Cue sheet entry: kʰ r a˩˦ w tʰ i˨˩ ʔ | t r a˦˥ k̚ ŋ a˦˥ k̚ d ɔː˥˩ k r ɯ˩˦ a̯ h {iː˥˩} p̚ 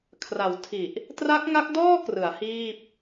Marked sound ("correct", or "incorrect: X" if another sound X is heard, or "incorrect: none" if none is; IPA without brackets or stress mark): correct